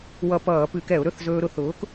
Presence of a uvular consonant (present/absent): absent